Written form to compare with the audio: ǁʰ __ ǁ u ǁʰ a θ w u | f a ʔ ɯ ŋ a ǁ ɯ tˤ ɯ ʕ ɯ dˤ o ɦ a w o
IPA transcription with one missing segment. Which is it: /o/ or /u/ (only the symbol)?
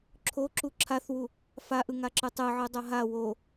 o